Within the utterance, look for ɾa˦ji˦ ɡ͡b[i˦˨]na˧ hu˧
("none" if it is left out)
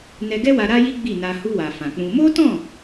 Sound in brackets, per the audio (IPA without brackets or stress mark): i˦˨